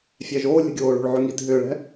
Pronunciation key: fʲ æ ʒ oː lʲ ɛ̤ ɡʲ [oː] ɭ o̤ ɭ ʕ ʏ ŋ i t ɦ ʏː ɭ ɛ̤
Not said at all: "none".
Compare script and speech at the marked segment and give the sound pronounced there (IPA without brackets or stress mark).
oː